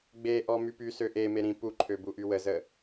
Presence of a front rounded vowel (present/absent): present